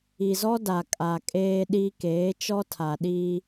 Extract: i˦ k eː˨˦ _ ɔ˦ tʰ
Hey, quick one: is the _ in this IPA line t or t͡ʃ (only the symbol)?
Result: t͡ʃ